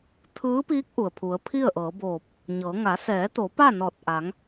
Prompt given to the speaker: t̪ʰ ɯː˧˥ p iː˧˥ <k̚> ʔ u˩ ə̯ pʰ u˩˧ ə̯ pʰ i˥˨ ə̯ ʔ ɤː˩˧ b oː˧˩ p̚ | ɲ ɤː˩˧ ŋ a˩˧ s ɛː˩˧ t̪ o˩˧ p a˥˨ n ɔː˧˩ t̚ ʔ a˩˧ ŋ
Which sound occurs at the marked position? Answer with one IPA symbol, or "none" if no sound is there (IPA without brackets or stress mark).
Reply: k̚